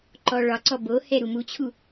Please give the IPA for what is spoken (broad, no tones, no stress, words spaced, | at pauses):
ǃɔɭɒǀɔ bohɛ ɾumut͡ɕʰu